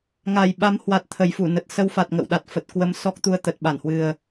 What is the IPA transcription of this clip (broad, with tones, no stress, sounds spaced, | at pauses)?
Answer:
ŋ a˨˩ j ɓ a˨˦ m h w a˨˩ t̚ t̪ʰ ə˨˩ j f u˧˩ n ə˨˩ t̚ s ə˧ w f a˨˩ t̚ ŋ ə̰˧˨ w ɗ a˨˩ t̚ f ə˨˩ t̚ k w ə˨˦ m s ɔ˦˥ k̚ t̪ u˧ ə̯ t̪ ə˨˩ t̚ ɓ a˧˩ n h w ɨ˨˩ ə̯